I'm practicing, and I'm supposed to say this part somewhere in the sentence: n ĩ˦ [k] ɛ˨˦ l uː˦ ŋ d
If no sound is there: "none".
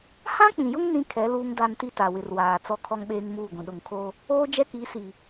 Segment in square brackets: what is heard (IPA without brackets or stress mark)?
kʰ